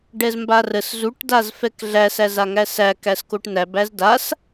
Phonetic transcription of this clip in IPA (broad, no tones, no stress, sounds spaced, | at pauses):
ɖ ɛ z m b a r ə s z u ʈ d a z f ɛ k ɮ æ s æ z a ŋ æ s æ k æ s k o ʈ n æ b æ z d a s